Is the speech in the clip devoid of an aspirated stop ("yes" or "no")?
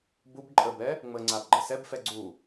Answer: yes